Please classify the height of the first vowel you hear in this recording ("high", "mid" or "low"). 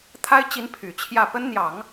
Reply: low